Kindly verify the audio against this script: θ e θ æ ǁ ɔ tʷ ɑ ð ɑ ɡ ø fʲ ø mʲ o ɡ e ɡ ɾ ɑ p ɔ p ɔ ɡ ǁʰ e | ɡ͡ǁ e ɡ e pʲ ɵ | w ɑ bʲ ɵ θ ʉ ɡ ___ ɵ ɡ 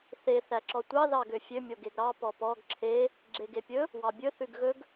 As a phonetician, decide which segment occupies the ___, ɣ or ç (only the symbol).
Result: ɣ